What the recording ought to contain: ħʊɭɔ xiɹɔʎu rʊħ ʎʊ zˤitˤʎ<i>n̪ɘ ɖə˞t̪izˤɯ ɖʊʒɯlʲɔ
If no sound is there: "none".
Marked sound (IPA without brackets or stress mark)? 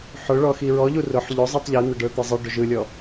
i